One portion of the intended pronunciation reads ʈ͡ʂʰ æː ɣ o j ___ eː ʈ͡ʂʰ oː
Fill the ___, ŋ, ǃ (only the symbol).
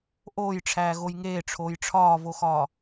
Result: ŋ